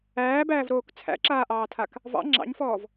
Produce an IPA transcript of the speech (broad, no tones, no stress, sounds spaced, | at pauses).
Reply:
æː b æː v ɾ oː k t͡sʰ æ̰ ǁ aː ʔ ɑː tʰ a k | v ɑ̰ ŋ͡ǁ ɑ̰ ɲ f ɔː v